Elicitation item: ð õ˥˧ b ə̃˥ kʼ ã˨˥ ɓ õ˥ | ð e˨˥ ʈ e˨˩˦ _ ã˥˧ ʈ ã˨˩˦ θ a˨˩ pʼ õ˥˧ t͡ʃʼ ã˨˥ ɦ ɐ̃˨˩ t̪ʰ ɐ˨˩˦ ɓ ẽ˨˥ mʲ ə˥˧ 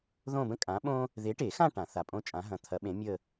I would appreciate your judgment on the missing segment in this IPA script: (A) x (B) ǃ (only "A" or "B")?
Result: A